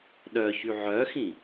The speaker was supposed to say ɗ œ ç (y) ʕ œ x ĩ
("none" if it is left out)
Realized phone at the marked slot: y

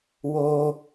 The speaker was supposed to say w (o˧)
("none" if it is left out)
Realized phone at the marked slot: o˧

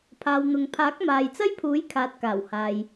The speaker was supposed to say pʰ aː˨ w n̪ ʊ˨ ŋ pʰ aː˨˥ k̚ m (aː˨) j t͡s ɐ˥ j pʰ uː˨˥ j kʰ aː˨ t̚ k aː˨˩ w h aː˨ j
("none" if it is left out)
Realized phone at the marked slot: aː˨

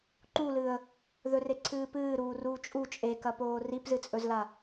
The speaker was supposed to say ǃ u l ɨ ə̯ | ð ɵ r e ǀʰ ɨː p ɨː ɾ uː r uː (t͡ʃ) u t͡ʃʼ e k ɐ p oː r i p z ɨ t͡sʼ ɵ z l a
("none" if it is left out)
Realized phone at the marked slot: t͡ʃʼ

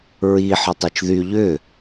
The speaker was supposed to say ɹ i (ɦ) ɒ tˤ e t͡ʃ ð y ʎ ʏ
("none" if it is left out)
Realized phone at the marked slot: ħ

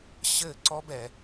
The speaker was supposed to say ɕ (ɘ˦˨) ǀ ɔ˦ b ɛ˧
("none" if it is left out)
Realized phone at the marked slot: ɘ˦˨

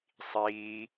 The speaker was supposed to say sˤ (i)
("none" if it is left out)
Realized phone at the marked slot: iː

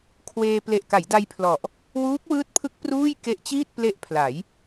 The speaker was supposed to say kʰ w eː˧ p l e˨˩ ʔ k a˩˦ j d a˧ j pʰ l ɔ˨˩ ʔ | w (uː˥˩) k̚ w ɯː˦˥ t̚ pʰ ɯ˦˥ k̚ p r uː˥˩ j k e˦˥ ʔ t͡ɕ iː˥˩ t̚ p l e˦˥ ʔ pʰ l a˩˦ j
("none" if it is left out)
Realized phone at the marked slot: uː˦˥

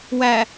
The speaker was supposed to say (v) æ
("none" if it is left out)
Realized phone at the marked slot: w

